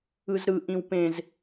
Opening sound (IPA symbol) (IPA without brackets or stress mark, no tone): ɯ